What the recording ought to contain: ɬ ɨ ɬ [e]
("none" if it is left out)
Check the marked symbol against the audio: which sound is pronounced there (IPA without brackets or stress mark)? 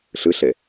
e